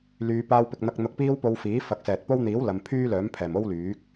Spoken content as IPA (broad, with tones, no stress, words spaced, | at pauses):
lyː˨˧ paː˧wpɪ˨k̚n̪ɐ˧k̚ n̪ʊ˧k̚piː˥wpo˧w fiː˨˥fɐ˨˥k̚sɛː˨t̚po˥w n̪iː˨˥w lɐ˨˧mpʰyː˥lœː˨˥mpʰɛː˨˩m o˥wlyː˨˥k̚